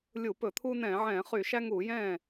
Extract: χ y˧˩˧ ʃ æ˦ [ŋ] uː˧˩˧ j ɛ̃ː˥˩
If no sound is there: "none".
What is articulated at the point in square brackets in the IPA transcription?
ŋ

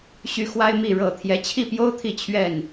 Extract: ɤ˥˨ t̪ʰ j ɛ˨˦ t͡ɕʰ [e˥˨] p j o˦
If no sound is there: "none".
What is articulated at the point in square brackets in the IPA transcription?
i˥˨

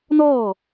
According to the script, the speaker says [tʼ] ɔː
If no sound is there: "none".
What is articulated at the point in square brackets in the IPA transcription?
n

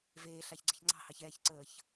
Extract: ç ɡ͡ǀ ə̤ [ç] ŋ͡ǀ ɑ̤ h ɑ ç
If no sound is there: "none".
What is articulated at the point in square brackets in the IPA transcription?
ç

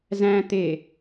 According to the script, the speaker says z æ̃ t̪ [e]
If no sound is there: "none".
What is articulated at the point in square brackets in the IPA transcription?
e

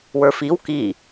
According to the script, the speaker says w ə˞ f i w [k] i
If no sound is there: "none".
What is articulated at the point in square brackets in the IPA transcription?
k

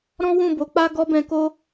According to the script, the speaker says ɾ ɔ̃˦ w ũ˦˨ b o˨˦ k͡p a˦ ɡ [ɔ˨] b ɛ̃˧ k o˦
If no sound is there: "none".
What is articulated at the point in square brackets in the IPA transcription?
ɔ˦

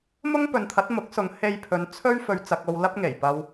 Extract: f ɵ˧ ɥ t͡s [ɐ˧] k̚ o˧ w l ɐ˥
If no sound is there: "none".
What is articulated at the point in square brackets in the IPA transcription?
ɐ˧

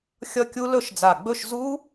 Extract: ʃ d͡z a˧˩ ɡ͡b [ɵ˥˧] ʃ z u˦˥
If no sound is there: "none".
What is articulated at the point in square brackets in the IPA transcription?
ɵ˥˧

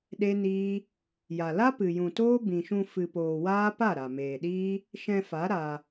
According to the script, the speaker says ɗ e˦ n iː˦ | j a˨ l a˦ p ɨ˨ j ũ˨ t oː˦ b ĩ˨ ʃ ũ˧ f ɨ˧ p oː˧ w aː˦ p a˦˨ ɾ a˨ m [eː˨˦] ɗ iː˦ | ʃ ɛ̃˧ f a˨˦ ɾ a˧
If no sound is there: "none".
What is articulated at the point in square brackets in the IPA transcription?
eː˨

